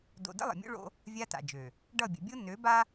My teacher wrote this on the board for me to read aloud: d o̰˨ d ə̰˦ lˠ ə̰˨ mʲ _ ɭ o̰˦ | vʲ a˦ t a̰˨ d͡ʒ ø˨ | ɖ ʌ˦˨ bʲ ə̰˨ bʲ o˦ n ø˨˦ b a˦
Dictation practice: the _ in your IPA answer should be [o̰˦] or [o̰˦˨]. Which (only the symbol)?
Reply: o̰˦